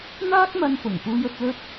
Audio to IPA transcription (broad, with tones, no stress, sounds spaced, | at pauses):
n̪ aː˥ k̚ m ɐ˧ n f ʊ˨˩ ŋ p uː˧ j ɵ˧ t̚ l ɵ˥ t̚